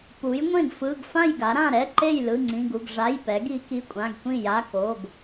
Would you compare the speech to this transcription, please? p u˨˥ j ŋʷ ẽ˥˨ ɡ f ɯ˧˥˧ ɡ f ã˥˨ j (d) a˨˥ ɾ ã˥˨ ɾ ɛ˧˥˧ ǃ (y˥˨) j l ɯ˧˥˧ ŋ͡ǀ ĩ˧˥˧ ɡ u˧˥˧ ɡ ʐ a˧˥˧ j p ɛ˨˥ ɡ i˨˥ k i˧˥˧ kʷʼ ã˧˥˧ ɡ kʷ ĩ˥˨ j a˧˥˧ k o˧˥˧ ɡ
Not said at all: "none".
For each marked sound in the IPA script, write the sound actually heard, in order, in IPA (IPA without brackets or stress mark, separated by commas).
ɡ, e˥˨